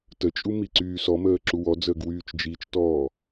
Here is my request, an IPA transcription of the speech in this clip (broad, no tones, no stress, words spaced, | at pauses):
tət͡ʃʼu miǀyːsɔməː ǁuwɔd͡zəːɡ wyːt͡ʃd͡ʒit͡ʃtɔː